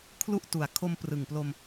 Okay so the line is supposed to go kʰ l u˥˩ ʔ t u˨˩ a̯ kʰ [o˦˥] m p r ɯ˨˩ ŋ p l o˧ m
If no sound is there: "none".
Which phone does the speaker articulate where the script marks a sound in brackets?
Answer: o˧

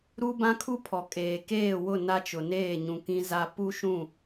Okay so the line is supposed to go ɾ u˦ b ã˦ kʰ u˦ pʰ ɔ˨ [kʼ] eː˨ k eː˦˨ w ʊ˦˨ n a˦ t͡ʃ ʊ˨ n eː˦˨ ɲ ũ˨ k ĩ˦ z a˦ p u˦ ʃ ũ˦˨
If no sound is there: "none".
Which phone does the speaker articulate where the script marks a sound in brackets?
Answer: kʼ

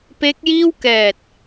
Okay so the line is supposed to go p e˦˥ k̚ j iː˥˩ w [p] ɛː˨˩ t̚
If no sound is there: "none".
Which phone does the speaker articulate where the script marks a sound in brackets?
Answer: k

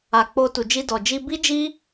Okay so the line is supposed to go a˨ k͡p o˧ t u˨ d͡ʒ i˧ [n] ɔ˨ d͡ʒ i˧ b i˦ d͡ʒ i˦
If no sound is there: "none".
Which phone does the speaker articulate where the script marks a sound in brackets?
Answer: d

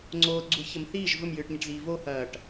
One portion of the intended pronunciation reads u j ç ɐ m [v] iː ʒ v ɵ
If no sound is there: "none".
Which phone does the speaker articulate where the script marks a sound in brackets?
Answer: θ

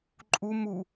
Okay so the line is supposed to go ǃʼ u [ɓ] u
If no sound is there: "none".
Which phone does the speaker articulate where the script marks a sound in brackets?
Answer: m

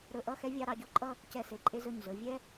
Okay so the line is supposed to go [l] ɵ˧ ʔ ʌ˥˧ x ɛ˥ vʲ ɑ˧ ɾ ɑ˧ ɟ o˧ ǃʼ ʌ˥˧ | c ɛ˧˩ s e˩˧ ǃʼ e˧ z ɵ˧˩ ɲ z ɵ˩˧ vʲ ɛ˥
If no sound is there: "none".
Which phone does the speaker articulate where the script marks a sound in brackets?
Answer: ɾ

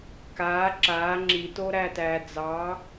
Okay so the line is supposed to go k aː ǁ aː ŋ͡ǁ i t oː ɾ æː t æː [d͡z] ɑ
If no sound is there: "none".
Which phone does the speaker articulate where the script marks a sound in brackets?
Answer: d͡z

